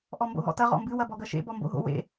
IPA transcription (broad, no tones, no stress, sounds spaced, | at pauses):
ʔ ɔ m b o̰ ɦ ɔ̰ t ɐ ʁ ɔ̰ m b ɨ w ɐ b ɔ ɡ ɐ ʃ ḛ b ɔ m b o̰ ɦ o̰ w ḛ